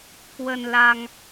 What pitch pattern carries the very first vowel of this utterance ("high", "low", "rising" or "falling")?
low